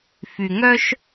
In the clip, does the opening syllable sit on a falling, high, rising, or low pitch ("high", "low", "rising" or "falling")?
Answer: low